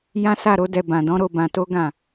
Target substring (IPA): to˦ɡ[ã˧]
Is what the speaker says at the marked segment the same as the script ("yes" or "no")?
no